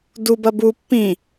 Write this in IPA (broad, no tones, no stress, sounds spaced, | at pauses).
d u b ɐ b u pː ĩ